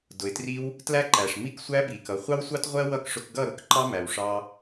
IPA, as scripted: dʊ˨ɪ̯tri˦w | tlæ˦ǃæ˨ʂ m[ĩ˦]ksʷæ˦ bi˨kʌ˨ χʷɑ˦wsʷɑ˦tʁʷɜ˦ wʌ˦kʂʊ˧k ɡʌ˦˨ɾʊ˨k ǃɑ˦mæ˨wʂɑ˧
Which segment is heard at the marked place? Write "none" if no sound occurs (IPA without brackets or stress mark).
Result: i˦